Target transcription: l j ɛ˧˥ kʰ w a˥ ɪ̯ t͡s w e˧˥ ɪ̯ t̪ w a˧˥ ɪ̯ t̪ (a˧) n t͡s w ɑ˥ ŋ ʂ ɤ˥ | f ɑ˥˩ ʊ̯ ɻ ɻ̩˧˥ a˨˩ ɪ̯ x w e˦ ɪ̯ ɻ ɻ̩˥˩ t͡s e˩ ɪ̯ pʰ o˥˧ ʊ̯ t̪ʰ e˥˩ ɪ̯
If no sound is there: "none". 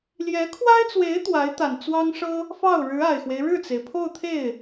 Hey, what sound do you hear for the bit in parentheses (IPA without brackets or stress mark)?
a˨˩